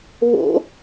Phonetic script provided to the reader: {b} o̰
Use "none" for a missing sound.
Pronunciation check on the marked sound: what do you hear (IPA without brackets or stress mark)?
β